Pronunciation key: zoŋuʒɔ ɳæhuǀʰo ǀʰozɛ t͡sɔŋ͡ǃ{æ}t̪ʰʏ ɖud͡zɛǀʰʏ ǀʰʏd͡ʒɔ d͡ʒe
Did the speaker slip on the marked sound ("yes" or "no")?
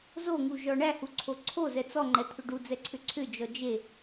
yes